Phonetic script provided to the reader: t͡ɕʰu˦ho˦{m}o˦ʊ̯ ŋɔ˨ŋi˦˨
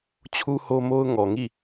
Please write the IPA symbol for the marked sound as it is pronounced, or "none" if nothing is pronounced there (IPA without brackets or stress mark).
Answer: m